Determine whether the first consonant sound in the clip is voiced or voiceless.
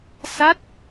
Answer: voiceless